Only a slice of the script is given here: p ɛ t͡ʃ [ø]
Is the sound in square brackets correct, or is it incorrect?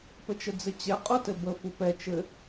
incorrect